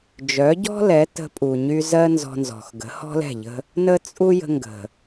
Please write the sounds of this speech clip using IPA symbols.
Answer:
d͡ʒ œ˨˦ ɟ ɔ̤˦ l ɛ˨˦ t ə̤˧ pʼ u˨ ɲ y˧ z ɜ˦ n z ɔ̤˧ n z ɔ̤˨ x ɡ ə̤˨˦ h ɔ̤˦ l ɛ̤˦˨ ʎ ə̤˦ | n ə˦ t͡sʼ u˦ j ə̤˧ ŋ ɡ ə̤˨

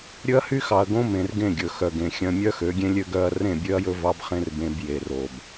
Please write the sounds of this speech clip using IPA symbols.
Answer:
ɾʲ ɵ˦ ɐ̯ h y˦ x ɑ˨ ɐ̯ ɡ õ˦ m ẽ˨ r ɡ ẽ˦˨ ɡʲ ɵ˨ x œ˨ ɡ ẽ˨ xʲ œ̃˦ mʲ œ˦ x ø˨˦ ɡʲ ẽ˦ lʲ ø˦ ɡ œ˦ ɐ̯ r ẽ˦˨ bʲ ø˦ ɐ̯ j ɵ˦ v ɑ˦ b χ ẽ˦ r b ẽ˦ b j e˨ r o˨ b

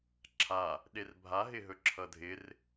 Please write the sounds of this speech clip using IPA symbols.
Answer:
ǁʰ a | ɗ e r bʱ a ɦ ɪ ɦ ɵ ǁʰ ʌ dʱ ɪ r

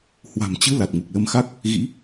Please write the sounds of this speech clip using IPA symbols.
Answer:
h w a̤˨˩ m t͡ɕ ɨ˨˦ l a˨˩ t̚ ŋ u˨˩ k̚ l ə˧ m x a˦˥ k̚ | ɣ ḭ˧˥

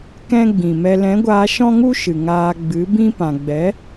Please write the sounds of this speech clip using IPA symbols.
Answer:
k ɛ̃˦ ɡ͡b ĩ˨ m ɛ˧ l ɛ̃˨˦ ɡʷ aː˧ ʃ ɔ̃˦ ŋ u˦ ʃ ɨ˨ ŋ aː˧ ɡ͡b ɨ˨˦ b ĩ˦ p ã˨ ɡ͡b ɛ˨˦

